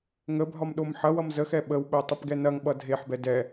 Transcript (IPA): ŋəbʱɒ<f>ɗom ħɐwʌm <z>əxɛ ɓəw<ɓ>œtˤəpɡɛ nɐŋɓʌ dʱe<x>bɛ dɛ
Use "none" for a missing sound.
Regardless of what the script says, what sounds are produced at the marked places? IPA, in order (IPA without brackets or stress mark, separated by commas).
m, z, ɓ, ħ